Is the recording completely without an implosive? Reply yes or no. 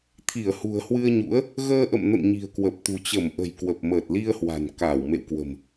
yes